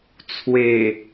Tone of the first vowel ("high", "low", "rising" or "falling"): low